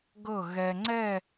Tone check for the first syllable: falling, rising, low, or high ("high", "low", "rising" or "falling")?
falling